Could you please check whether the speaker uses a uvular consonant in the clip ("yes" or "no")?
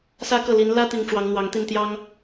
no